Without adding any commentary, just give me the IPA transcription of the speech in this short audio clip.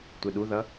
tʷ e ɗ u ð ʌ

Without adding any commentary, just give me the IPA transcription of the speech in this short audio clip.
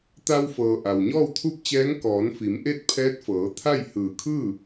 t̪ a˧ w f ɤː˩ ʔ a˩ w ɲ ɔː˥˨ w t̪ʰ u˥˨ p̚ t͡ɕ ɛː˧˥ ŋ k ɔː˩˧ n f i˩˧ m ʔ e˥˨ t̚ pʰ ɛː˧˥ t̚ f ɤː˩˧ t̪ʰ a˥˨ j h ɯː˧˩ kʰ ɯː˥˨

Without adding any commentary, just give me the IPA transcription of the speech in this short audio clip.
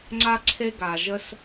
ŋ͡ǀ a˦ ǀʰ e˦ ɡ aː˧ ʒ ə˦ s

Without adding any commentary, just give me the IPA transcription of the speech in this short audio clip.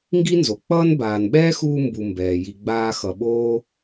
ŋ ɡ i˥ n z o˩ k͡p ʌː˥ n b aː˨ n ɓ ɛː˥ x uː˦ m b u˨ m b ɛː˩ j i˨ ɡ͡b aː˦ x ʌ˨ ɓ oː˥

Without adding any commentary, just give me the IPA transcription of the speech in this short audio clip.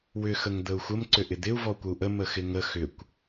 w ʏ x ə ŋ d̪ ə u̯ xʷ ə m ǀ ʏ ʔ ɪ d̪ ɪ u̯ v ɔ kʷ ə u̯ ʔ ə m ə x ɪ ŋ ə x ʏ kʷ

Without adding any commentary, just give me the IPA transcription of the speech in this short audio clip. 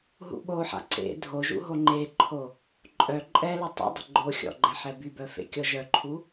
ɦ ṵ ɓ o ħ a̰ ǀ ḛ dʱ o ʒ ṵ ɦ o ŋ͡ǃ e ǃʰ o | ǃʼ œ ǃʼ ɛ l u tˤ ɛ̰ dˤ ə̤ ɡ͡ǃ o xʲ ɔ̰ ɡ͡ǃ ɛ ħ ɛ b y b œ f ḛ kʲ ɔ ʒ œ ǃʰ u

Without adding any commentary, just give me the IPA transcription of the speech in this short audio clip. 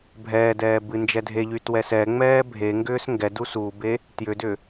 bʱ ɛː d ɛː b ɨ n d͡ʒ ɛ dʱ e ʎ y t w ɛ s ɛ ŋ͡m ɛː bʱ e ŋ ɡ ʏː s ŋ ɡ ɛ d u s u b e | t j ʏ d ʏ

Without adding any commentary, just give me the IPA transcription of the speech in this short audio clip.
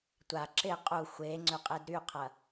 tʷ a ǁ ɪ qʼ u xʷ e ŋ͡ǀ ʏ qʼ e d ɾ y qʰ ɐ

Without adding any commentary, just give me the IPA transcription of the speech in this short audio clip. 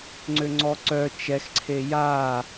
ŋ͡ǀ ø ŋ͡ǀ ɔ ǀ œ t͡ʃ ɛ x ǀʰ e j a

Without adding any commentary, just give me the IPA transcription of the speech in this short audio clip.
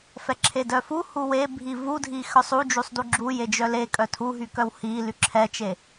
f ɛ ǁʰ e d œ f u h u w e bʱ i v u dʱ i x œ sˤ u d͡ʒ u sˤ d u ɡ͡ǁ u j e d͡ʒ œ l e kʼ œ tʰ u ɦ y k œ w h i l y ǁʰ ɛ t͡ʃ e

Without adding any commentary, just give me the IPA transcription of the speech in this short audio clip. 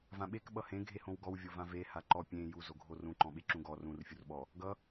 v ã ɓ e k ɓ ʌ h ẽ ɡʱ e h õ w ɡ ɔ w vʲ o v ã v e h a ǃ ɔ pʲ ẽ j u z o ɡʱ o r ũ ǃ ɔ̃ ɓ e ǁ ũ ɡ ɔ r ũ r fʲ u r ɓ ɔ | ɡ ʌ

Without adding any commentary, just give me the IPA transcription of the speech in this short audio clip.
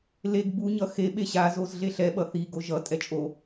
l e ɡ b u ɲ ʌ x e ɓ e ɕ a z o z ɮ e ɬ ɛ ɓ ʌ θ i ɡ o ʒ ʌ tʼ ɛ t͡ʃʼ o

